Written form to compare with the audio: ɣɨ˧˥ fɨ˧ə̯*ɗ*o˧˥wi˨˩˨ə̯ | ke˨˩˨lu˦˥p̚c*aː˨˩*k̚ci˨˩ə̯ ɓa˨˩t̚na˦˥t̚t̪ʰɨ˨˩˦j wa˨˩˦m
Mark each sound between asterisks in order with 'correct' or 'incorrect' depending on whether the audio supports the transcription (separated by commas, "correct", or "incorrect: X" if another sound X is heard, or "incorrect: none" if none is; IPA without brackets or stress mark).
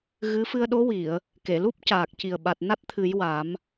correct, correct